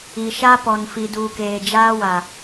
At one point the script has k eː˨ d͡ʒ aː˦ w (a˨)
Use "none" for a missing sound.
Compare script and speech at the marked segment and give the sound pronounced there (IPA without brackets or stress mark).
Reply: a˨